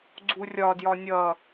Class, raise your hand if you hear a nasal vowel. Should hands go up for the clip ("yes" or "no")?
no